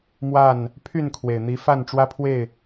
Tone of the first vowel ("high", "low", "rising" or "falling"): falling